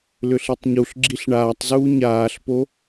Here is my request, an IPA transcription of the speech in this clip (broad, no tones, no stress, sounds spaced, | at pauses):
l ʏ ɬ i tˤ ɲ u ɬ ɡ͡ǁ i ɬ ɳ aː tˤ z uː ɲ aː ɬ p o